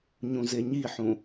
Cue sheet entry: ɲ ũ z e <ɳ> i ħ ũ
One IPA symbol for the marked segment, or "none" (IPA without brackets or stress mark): ɲ